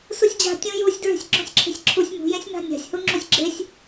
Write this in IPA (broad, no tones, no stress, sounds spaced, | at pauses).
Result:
s u sʲ d͡ʑ a̤ tʲ ũ j u sʲ d ɹ e̤ sʲ ɡ͡ǁ ũ sʲ ǁʰ e̤ sʲ ǁʰ u sʲ m ṳ j ẽ sʲ n̪ a̤ nʲ a̤ sʲ h u ŋ͡ǁ u sʲ ɡ͡ǁ e sʲ